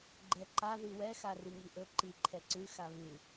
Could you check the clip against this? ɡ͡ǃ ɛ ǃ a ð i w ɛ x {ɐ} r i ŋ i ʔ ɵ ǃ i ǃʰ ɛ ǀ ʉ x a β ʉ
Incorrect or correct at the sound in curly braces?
incorrect: a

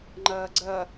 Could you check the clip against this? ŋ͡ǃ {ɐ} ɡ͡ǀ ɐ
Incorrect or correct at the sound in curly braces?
incorrect: ɐː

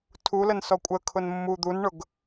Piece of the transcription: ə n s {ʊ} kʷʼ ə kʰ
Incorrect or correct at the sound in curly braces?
incorrect: ɔ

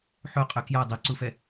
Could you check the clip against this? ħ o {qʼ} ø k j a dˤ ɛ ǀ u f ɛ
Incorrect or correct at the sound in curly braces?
correct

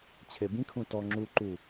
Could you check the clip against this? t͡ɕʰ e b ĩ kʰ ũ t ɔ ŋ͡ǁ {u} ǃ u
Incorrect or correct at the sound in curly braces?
correct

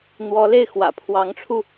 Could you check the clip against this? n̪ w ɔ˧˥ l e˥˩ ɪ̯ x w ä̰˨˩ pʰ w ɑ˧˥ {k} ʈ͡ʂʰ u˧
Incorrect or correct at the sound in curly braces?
incorrect: ŋ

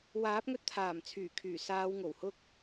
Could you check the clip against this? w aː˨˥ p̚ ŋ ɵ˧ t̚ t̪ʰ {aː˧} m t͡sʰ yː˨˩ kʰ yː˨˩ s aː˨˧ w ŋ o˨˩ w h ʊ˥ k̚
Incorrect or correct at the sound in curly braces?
incorrect: aː˨˩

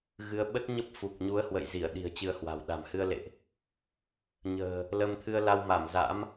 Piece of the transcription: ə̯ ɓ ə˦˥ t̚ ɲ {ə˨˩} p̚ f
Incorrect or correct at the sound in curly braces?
incorrect: ə˦˥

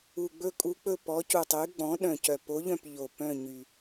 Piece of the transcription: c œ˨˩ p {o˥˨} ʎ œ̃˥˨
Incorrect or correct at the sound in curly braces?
incorrect: o˧˥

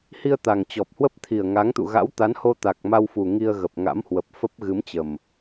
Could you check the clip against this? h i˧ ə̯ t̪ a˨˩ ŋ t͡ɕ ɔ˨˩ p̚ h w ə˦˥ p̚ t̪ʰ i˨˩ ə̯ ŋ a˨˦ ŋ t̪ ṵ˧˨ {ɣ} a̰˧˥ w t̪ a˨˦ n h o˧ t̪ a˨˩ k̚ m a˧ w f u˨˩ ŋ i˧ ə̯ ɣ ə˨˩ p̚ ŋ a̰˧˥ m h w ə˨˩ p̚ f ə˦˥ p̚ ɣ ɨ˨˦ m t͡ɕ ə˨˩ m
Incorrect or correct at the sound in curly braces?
correct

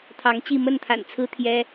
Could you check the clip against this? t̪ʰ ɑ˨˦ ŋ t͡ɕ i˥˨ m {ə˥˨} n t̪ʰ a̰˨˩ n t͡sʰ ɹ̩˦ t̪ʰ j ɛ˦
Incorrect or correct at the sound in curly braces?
correct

